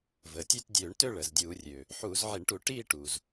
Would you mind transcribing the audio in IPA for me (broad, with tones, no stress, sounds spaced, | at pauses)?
v əː˩ tʲ ø˥˧ t dʲ øː˧˩˧ ɳ t ø˥˧ ɭ əː˩ z dʲ uː˧˩˧ rʲ øː˩ | ħ uː˧˩˧ z ʕ i˧˩˧ ɳ ʈ u˧˩˧ ʈ iː˥˧ ʈ uː˩ z